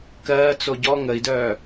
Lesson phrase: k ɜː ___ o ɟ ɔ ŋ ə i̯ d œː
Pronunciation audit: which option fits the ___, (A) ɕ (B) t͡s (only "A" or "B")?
B